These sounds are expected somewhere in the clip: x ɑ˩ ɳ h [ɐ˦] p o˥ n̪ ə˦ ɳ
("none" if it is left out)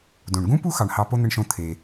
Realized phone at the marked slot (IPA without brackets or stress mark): ɑ˦